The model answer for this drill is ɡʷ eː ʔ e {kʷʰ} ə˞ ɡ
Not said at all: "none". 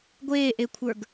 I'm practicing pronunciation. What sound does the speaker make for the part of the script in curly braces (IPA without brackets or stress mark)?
kʷʰ